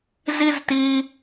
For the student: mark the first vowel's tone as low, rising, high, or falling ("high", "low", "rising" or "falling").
high